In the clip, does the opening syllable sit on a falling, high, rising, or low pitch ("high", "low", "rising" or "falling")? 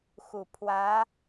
low